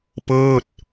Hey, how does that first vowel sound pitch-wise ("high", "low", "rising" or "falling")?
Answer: falling